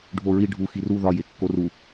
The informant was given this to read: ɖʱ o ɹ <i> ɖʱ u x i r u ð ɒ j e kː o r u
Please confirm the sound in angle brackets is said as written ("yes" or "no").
yes